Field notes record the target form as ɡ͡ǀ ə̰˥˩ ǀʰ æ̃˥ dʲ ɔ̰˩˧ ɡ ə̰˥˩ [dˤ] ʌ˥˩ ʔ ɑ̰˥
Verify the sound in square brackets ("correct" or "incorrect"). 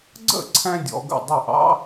correct